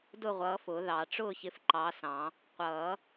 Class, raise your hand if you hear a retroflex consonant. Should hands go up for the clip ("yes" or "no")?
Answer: yes